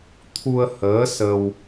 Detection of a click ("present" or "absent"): absent